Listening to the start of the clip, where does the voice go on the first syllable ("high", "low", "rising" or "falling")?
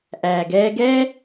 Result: low